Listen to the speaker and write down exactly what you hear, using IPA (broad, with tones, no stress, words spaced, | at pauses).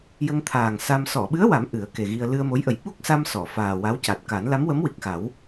jə˧ŋt̪ʰaː˨˩ŋ sa˧m sɔ˨˩˨ɓɨ˧˥ə̯wa˨˩˦m ʔɨ˨˩˦ə̯ke˨˩ɣi˧ə̯ lɨ˧ə̯mo˧˥jʔə˨˩j ɓu˦˥k̚sa˧m sɔ˨˩˨faː˨˩wa˧˥w ca˨˩t̚ka˨˩˦n la˧˥mwə˧˥mwi˨˩k̚xa˨˩˦w